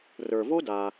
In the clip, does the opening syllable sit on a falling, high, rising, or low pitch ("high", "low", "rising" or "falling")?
low